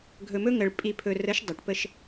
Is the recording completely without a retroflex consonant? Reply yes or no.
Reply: no